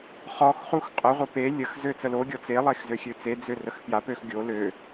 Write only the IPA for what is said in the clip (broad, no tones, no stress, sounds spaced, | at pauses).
χ ɔ x χ u x qʼ ə ʁʷ ə p e lʲ ə x z ø t͡s ə l o ɡʲ ɔ t͡s e lˠ e x z ø xʲ ø t͡s e d͡z ø r ə x p j a p ø x ɡʲ o l ø